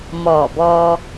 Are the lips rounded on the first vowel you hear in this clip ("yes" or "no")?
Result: yes